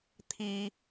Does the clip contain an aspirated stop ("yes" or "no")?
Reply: yes